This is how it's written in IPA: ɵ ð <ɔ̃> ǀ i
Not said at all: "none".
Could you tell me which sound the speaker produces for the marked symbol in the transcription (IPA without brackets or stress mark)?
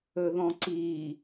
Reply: ɔ̃